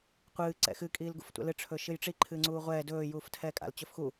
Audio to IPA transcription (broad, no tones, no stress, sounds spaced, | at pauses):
qʷ ɨː ǀ ɛ̰ x ɨ kʼ iː l ɡ ṵ f tʷ ɛ̰ l ɨ ʈ͡ʂʰ ɵ ʃ ɨ j ʈ͡ʂ i ǃʰ ɨː ŋ͡ǀ uː ʁʷ ɛː d ɵː j uː f tʰ ɛː kʼ a̰ l t͡ɕ ɵ f x u